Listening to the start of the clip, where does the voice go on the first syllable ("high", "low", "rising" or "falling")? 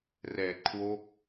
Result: low